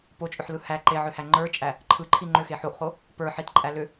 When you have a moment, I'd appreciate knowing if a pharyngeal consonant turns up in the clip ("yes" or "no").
yes